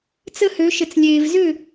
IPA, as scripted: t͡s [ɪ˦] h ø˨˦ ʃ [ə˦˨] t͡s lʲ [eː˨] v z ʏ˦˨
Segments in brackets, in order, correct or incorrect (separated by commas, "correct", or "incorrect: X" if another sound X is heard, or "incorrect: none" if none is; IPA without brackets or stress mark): incorrect: ə˦, incorrect: ə˨, correct